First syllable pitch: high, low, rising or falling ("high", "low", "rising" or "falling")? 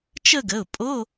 falling